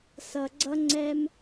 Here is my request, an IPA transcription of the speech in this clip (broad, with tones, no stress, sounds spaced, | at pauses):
s ʌ˨ ɡ͡ǀ ʌ˦ ŋ͡ǀ ɛ˦ m